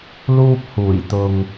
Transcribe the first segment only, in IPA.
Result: l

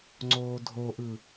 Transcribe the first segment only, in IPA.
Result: ŋ͡ǀ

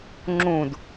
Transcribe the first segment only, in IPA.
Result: ŋ͡ǁ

